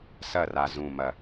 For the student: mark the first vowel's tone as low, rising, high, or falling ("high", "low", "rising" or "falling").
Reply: falling